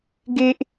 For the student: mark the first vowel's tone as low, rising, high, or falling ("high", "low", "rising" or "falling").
high